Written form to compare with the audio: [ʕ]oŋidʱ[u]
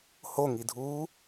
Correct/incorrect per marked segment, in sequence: incorrect: h, incorrect: uː

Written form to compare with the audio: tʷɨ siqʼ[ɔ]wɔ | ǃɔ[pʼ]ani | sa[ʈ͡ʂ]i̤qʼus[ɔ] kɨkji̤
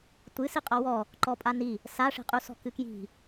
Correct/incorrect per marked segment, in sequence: correct, correct, incorrect: ʂ, incorrect: ɔ̤

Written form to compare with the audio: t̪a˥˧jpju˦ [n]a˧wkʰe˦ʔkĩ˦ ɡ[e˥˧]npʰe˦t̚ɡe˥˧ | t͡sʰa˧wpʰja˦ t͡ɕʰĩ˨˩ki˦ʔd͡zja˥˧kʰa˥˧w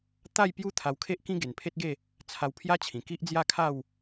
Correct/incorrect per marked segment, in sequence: incorrect: t̪ʰ, incorrect: e˨˩

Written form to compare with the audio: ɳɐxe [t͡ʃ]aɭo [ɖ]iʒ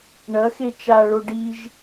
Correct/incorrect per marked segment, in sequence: correct, correct

